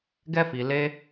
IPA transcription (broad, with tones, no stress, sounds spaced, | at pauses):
ɡ ɛ˦ f i˧ l e˦